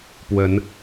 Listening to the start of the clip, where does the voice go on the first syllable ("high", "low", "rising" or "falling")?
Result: rising